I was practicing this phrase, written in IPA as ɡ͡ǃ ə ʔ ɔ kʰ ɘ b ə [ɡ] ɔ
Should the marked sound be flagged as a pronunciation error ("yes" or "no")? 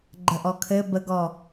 no